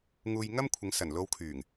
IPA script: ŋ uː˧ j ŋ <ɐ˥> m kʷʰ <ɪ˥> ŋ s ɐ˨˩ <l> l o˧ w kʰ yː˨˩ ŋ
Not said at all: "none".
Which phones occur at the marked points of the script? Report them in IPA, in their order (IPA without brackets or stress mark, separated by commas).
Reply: ɐ˥, ɪ˨˧, n